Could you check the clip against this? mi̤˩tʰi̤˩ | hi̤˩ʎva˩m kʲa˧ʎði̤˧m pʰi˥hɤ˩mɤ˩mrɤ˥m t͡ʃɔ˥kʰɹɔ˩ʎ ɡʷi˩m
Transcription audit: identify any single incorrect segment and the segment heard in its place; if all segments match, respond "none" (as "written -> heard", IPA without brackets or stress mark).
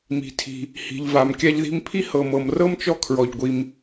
none